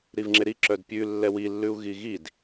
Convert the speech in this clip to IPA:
ɾivŋ͡ǁeɾi ǁœdpʲʉ lːɛwi lːʉu̯ɣiɣid

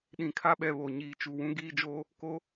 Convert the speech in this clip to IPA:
ɗĩ˨kʰa˦ɓɛ˨ βo˨ ɲiː˨t͡ʃu˨ wũ˦ ɡiː˦d͡ʒo˦ | ko˦

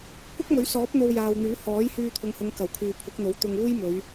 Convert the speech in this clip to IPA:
kʷɐ˥k̚mɵ˨˥ɥsɔː˨˥p̚ n̪o˧wjaː˨wn̪yː˨˥ hɔː˨˥jhyː˧t̪ʰʊ˨˧ŋhʊ˨˧ŋ kɐ˨˩wkʰyː˨ pʰʊ˨˥k̚n̪o˨˥w t̪ʊ˧ŋ uː˥jmɵ˨˧ɥ

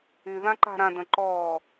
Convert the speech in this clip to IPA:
y ðãǃa̤ɾãdə̃ ǃɔː

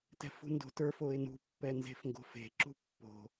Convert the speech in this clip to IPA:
tɛ̤fṳndo̤tə˞f oɪ̯nṳ pːɛnze̤fŋɡo̤fe̤ ǁṳpːo̤

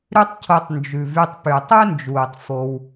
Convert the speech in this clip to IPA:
ɾʉ˦tˤcʰo˧tˤ nd͡ʒʉ˨vy˧tˤpy˨ tˤœ˦nd͡ʒuː˨tˤ fo˧w

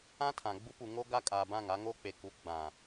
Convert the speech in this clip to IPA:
ã˦tʰã˨ ɡ͡bu˦pu˨ŋo˦ɡa˦ kʼaː˨bã˦˨ŋa˦ ŋo˦k͡pe˨ku˨˦ ɡ͡bã˨

